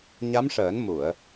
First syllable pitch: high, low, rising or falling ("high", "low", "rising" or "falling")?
rising